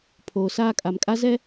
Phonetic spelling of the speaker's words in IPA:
pʰoː˨saː˦kʼa˨m kʼa˦zɛ˦

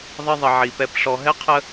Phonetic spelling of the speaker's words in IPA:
ðˤɪ˦ðˤə˧ʕi˧pɛ˦p ɬɔ˧ɦɛ˦qʰə˦

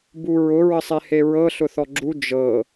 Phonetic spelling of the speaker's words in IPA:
buɹʊ ɹəsˤeheɹɤ ɬʊθɔɡ͡ǁu d͡ʒɤ

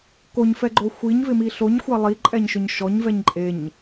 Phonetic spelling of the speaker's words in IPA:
koɲfɛɡ͡ǃo xʷiɲvɪmi ɬoɲxʷa lˠiǃʼɛɲʃʊɲ ʃɔɲvɛɲ ǃʼeɲ

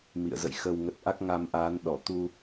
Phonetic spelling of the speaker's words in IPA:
mḭ˧˨ə̯zə̰˧˨jxə˧w ŋə˨˩t̚ ʔa˦˥k̚ŋa˧mʔa˨˦n ɗɔ˧˩t̪u˧

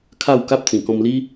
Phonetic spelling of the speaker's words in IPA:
kʰa˥˧wka˦p̚t͡sĩ˨˩ kɔ̃˧mli˦

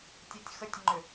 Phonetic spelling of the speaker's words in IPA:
tʲɔtʲxətʲŋ͡ǃʏ

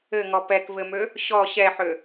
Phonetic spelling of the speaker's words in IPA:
ɘŋɔ pɛkvɘmø | ɕɔ ɕɛħø

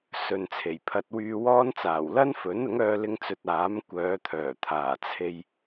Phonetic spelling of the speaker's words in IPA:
sɵ˨nt͡sʰe˨˩jpʰɐ˧t̚ wyː˧wɔː˥nt͡saː˨˩w lɐ˥nfɵ˨˥nʊ˨˥ŋ œː˧lɪ˧ŋt͡sɵ˨t̚ aː˨˥m kʷœː˨˧t̪ʰœː˨˩ t̪ʰaː˨˩t͡sʰe˧j

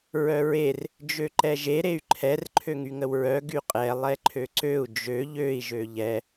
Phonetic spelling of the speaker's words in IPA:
ɹœɹer | d͡ʒøǃɛʒe ɾey̯ǃʰɛr ǃʰøŋyŋəwɹœ ɡyqʼɛ lˠɛǃʰøǀøu̯ d͡ʒø ʎøi̯ ʒøʎɛ

